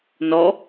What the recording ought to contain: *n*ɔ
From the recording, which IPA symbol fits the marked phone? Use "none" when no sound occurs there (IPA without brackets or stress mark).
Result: n